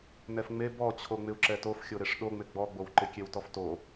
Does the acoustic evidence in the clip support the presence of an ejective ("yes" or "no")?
no